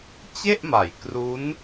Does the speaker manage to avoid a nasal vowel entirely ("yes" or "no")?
yes